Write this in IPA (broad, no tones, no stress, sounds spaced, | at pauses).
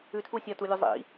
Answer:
ʉ tʰ u sʲ ɐ t u lʲ u zˤ ḭ